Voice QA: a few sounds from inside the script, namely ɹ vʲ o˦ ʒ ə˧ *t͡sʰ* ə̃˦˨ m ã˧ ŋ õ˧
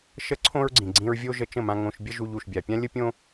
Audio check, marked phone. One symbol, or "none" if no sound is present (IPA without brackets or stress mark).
t͡ʃ